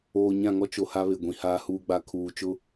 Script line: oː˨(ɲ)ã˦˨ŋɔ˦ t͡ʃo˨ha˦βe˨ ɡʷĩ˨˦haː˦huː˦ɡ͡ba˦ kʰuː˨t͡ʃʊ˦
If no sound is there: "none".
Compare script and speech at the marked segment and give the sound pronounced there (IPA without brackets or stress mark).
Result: ɲ